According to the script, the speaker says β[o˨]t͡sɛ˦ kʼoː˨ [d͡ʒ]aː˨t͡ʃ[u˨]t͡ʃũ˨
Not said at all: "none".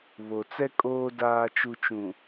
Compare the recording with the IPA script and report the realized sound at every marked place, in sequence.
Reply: o˨, d, u˨

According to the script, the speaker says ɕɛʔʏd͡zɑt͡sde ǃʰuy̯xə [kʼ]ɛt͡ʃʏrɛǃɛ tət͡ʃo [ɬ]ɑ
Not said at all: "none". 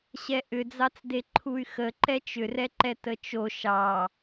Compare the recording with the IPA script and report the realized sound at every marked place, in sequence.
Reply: ǃ, ʃ

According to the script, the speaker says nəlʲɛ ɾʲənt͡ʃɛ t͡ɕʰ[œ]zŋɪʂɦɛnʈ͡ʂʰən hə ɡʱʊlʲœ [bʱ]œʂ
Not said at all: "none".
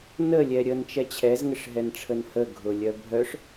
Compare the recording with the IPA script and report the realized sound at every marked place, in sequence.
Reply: ɛ, bʱ

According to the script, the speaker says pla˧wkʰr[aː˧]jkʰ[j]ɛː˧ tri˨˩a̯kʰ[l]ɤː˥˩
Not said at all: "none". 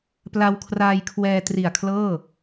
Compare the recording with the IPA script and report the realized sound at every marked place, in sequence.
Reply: aː˧, w, l

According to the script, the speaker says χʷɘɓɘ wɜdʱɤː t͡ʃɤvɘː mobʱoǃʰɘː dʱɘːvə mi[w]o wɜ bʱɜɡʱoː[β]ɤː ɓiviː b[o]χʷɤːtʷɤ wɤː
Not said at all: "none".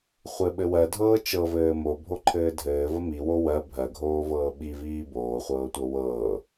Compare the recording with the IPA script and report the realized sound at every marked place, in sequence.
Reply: w, v, oː

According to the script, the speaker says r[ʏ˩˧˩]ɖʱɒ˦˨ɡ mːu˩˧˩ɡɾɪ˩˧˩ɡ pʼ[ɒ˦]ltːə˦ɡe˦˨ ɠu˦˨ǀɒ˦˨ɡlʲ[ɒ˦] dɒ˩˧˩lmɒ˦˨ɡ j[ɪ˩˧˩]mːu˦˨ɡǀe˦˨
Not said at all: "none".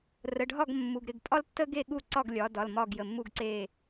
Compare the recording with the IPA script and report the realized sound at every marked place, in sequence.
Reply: ə˩˧˩, ɒ˦, ɒ˩˧, ə˩˧˩

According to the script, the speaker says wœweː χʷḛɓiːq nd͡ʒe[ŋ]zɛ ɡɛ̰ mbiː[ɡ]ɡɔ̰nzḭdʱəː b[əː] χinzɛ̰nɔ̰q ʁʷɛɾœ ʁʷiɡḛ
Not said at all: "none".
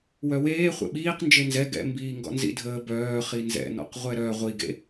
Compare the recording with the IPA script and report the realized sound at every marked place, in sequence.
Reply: n, ŋ, œː

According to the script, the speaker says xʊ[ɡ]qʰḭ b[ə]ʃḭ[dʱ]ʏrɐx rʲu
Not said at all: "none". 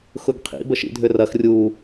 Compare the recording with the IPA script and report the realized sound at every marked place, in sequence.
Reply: ɡ, ə, dʱ

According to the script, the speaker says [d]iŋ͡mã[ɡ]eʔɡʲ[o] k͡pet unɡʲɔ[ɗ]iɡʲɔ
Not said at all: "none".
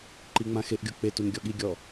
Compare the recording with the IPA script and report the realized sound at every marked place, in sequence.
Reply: ǃ, x, o, ɠ

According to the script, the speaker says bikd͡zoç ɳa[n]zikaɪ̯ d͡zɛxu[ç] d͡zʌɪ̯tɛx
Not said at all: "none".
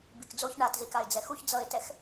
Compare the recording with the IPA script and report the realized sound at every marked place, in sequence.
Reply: t, ç

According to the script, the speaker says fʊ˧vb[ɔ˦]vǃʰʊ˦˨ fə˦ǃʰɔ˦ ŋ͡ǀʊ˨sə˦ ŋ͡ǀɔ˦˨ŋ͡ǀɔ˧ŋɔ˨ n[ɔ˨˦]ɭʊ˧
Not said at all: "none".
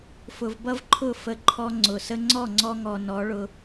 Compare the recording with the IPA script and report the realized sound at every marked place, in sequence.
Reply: ʌ˦, ɔ˨˦

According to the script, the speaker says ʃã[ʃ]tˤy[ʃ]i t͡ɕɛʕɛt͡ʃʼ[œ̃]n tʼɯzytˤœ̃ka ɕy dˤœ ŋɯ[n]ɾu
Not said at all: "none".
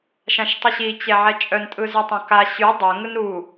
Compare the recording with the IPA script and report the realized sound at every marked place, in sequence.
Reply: ʃ, ɕ, œ, n

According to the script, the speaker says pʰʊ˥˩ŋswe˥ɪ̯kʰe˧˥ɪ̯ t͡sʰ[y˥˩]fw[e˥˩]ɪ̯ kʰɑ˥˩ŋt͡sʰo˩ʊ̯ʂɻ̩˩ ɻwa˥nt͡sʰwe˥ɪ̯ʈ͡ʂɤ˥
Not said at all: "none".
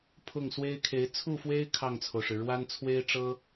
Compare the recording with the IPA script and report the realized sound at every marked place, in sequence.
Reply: u˥˩, e˥

